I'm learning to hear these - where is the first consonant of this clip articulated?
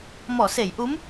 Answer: lips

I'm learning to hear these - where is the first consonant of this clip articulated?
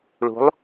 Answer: retroflex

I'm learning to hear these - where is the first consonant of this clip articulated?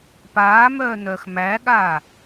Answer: lips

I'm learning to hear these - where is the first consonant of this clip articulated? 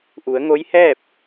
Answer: throat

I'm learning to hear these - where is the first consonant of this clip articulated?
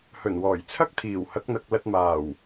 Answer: throat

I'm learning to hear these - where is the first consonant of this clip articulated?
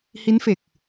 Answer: throat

